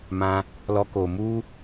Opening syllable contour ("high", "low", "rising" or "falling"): high